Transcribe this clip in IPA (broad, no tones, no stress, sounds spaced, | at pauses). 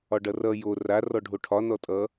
ɒ ɖ ʌ r ʌ j o r a r ɔ ɖʱ o ʈʰ ɒ n ɔ tʼ ʌ